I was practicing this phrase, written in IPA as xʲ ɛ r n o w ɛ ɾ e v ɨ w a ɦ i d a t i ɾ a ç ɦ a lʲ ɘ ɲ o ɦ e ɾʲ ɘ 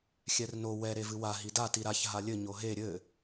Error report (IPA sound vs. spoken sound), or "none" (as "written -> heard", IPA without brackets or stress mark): none